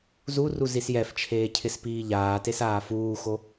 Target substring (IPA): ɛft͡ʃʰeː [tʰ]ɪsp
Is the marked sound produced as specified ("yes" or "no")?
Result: no